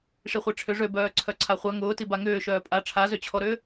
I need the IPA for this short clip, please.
ʂ i χʷ i ʈ͡ʂʰ ʏ ʐ ø b œː ǀʰ œ ǀʰ a χʷ a ŋ ʊː t i b a ŋ ʏː ʃ œː pʼ a ʈ͡ʂʰ a z ø t͡ɕʰ ɔ ɾ ʏː

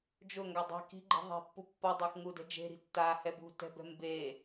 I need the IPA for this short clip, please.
d͡ʒ ʊ ŋ ɡ a dˤ i̤ k i̤ ɡ͡ǃ i̤ ðˤ e̤ pː u pː ɔ dˤ ɛ x ŋ u d ɛ̤ d͡ʒ e̤ ɾ i̤ tː a h ɛ b ṳ t ɛ̤ b ɛ̤ m b e

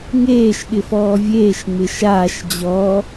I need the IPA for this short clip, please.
ŋ eː ʃ ɠ ɪ f ɔː vʲ eː ʃ ŋ͡m ɪ ʃ aː ʃ d͡ʑ ɔ

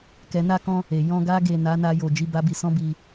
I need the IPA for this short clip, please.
k ɛ˧ n a˦ k ɔ̃˦ | e˨ j ɔ̃˧ ɡ a˦ ɡ e˦˨ n a˨˦ n a˧ j o˨ d͡ʒ i˨˦ b a˦ b i˧ s ɔ̃˦ b i˦˨

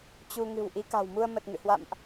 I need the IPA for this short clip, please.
t͡ɕ u˧ ŋ ɨ̤˨˩ w ʔ i˨˦ k a̤˨˩ w m u˧ ə̯ m ə˨˩ t̚ ŋ ɨ̰˧˨ h w a̰˧˨ m ʔ

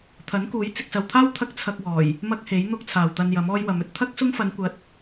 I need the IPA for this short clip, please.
t̪ʰ ɐ˨˥ n k uː˨˥ j t͡s ɪ˨ k̚ s ɐ˨ w t̪ʰ aː˥ w t̪ʰ ɐ˥ k̚ t͡sʰ ɐ˧ k̚ w ɔː˨˩ j | m ɐ˥ k̚ h e˨˥ j n̪ ʊ˧ k̚ t͡sʰ aː˨ w t̪ ɐ˧ n j ɐ˨˥ m ɔː˥ j w ɐ˨˧ m ɵ˥ t̚ t̪ʰ ɐ˥ k̚ s ʊ˥ ŋ f ɐ˨˧ n kʷ ɐ˨˥ t̚

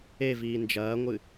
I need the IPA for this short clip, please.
e v iː n d͡ʒ ɐː ŋʷ ɨ

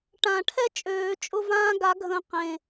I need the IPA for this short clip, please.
ʈ ã˨˩˦ ʈʰ ɛ˥ t͡ʃʼ øː˨˩˦ t͡ʃʼ ʊ˥˨ v ãː˥ ɡ a˧˥ ɡʱ ə̃ː˧ q ẽ˨˩

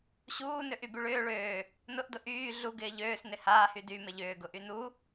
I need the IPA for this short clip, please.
ɕ uː n ø ʔ y b y ɭ ʏː ɭ øː | n ʊ ʔ d ʊ ʔ yː ɮ u ɡ ɪː ʎ øː s n ɪ h aː h y d y m ɪ ʎ ʏː ɡ ʊ ʔ y n u

